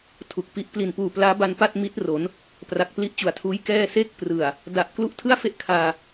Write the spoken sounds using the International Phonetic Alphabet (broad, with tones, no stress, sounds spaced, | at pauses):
tʰ u˨˩ k̚ p i˦˥ ʔ p l i˨˩ n p uː˨˩ p l aː˦˥ b a˧ n p a˥˩ t̚ m i˦˥ t̚ r o˩˦ n | p r a˨˩ k̚ p l i˦˥ ʔ t͡ɕ u˨˩ a̯ tʰ uː˦˥ j k ɛː˥˩ s e˥˩ k̚ p r ɯ˨˩ a̯ | d a˨˩ ʔ k l u˥˩ ʔ tʰ ɯ˥˩ a̯ f e˥˩ ʔ kʰ aː˧